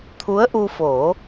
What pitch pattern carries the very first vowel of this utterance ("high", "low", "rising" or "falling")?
rising